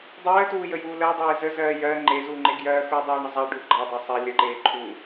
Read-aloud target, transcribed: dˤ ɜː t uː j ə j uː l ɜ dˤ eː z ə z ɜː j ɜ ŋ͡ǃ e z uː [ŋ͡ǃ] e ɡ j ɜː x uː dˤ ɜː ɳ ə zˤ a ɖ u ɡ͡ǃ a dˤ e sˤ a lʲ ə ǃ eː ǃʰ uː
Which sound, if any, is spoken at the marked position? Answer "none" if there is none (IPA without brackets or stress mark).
ŋ͡ǃ